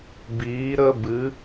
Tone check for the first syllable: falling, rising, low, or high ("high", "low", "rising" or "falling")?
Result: rising